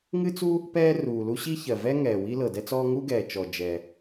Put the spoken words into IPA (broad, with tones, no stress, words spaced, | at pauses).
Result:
ŋɨ˥t͡su˥ | pɛː˥ ruː˩lu˥ ɕi˥çɜ˩vɛ˥ ŋɛː˩ wi˥lɤ˩dɛ˥t͡sɔː˥ ŋu˥ɡɛː˩t͡ʃɔ˩ d͡ʒɛ˩